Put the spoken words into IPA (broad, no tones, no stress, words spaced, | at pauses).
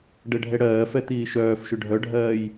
ɖɛɖʱɛɽɜːfɛ t̪iːʃœːfʃʏ ɖʱœɖʱɜːj